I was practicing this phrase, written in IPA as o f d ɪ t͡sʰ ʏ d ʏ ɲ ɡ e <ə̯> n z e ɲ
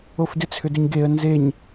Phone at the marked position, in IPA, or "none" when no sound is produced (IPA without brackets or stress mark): ə̯